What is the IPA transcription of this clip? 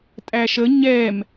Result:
tʼæʃə ɲɛm

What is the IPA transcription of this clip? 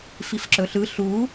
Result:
fifǁɵɬɯ ɬu

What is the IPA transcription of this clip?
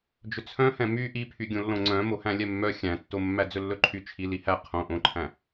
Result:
d͡ʒɵt͡sʰœ̃hɛ̃ my ʔipʰyɡʲõ lːõŋ͡ǀœ̃mo hæ̃lʲɛmːœ xʲæ̃tːomːæ d͡zɵlːɵǃʰy t͡ʃʰi lihæ qʰõ ʔõǃʰæ̃

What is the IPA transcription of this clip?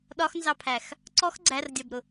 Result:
ɗɒxnzɑpʰæx | ǀɔx ɡ͡ǀærdʲɒbɾʊ

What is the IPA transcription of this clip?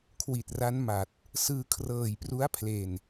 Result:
kʰwi˨˩t̚ra˦˥nma˨˩t̚ | sɯː˧kʰrɤː˨˩jpru˦˥a̯pʰle˨˩n

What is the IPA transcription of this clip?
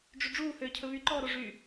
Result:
ɖ͡ʐyɖ͡ʐuː høːcʰɵβy ǃɔːɾoʐy

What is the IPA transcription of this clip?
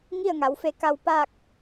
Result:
ŋi˥˨ə̯ŋa˩˧wfe˧ka˧w paː˥˨k̚

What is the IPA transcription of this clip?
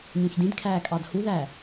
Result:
ɲũçdĩdkʰæː kʼɑdhuðæ

